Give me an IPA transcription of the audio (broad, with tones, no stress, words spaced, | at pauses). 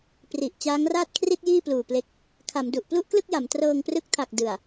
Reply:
pri˨˩ʔ t͡ɕaː˦˥ŋraː˥˩t̚kʰri˥˩t̚ jiː˥˩pluː˨˩ ple˦˥k̚ | kʰa˩˦mdu˨˩ʔ plu˥˩ʔklɯ˥˩k̚ja˩˦m trɤː˧ŋprɯ˦˥k̚tʰa˨˩k̚ dɯ˨˩a̯